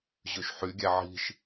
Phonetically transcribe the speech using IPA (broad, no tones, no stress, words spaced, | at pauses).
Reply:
ʑøʃħyɡʲæ ʕi̤ʃ